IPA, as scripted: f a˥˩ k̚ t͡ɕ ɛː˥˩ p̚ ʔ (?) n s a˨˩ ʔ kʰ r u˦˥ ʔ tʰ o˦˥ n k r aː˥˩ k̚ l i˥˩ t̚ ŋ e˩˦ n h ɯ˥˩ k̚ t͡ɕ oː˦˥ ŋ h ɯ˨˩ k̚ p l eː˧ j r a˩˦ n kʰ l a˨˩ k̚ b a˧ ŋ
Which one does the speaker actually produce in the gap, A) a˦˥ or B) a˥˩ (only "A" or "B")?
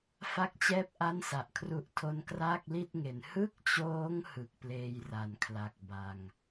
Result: B